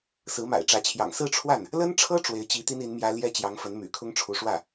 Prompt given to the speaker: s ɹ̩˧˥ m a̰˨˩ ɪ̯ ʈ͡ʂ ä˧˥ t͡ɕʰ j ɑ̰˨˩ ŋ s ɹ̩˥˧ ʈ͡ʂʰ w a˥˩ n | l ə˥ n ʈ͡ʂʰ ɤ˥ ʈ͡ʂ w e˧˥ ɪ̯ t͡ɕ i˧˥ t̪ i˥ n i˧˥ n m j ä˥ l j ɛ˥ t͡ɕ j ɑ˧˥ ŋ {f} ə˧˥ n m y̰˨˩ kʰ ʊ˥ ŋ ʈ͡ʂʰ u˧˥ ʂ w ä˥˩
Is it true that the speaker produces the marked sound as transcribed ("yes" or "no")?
yes